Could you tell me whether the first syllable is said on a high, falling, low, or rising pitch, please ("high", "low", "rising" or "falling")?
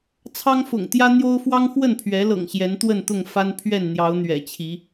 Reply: high